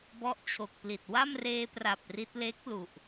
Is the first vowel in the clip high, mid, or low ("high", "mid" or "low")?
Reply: mid